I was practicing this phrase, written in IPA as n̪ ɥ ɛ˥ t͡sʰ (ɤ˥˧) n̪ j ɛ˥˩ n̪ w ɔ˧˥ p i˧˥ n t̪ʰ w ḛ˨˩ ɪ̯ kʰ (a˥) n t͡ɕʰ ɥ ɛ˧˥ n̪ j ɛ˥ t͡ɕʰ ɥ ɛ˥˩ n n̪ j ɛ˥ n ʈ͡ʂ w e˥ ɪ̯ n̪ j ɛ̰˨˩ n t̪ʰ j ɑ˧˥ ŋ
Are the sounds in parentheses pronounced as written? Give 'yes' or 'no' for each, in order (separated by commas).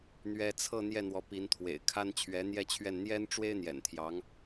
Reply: yes, yes